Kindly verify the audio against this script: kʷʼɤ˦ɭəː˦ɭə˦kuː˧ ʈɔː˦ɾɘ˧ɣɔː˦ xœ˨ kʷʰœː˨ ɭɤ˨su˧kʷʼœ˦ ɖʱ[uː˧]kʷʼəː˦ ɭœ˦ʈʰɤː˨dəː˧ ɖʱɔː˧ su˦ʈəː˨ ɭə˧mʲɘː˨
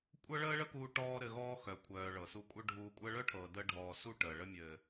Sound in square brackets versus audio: correct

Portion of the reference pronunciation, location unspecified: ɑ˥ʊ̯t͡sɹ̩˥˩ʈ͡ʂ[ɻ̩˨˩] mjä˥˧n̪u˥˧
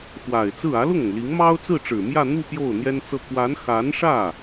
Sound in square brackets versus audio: correct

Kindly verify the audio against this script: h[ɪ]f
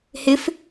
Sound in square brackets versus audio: correct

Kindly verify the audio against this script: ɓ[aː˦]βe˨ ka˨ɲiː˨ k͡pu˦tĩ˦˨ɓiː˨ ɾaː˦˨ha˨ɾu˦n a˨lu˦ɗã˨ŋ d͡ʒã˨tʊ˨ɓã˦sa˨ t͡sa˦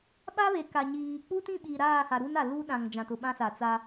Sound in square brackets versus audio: incorrect: a˦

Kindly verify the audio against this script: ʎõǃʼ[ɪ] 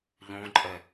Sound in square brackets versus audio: incorrect: ɛ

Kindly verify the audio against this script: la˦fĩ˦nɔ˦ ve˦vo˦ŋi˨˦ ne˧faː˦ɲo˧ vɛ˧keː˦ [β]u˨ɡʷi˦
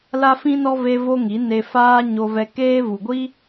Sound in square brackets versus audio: incorrect: v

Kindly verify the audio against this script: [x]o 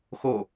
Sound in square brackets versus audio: correct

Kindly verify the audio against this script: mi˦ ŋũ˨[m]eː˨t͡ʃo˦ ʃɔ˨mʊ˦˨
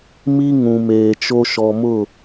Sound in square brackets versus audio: correct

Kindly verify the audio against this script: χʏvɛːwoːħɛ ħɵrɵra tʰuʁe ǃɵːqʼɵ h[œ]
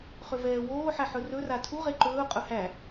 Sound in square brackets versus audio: incorrect: æ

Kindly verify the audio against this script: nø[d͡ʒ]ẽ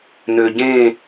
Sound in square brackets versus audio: incorrect: ɟ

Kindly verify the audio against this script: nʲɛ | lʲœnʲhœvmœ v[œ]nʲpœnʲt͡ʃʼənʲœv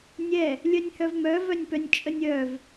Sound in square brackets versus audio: correct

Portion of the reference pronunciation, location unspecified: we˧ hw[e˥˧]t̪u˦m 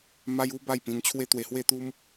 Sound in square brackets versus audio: correct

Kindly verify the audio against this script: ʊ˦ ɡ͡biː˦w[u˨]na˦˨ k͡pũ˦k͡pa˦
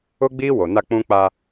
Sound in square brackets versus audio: incorrect: o˨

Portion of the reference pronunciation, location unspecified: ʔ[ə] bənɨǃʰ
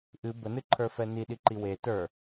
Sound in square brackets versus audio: incorrect: ɨ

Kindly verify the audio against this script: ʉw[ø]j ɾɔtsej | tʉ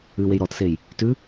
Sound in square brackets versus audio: incorrect: e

